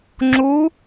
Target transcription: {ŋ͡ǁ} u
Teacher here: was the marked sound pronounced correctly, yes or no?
yes